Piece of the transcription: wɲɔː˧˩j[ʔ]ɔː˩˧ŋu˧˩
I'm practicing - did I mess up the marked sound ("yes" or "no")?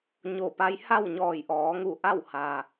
no